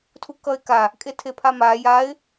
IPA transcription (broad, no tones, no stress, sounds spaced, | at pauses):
tʰ u k ʌ ɪ̯ k a | kʼ e tʰ e pʰ a m a j a ɪ̯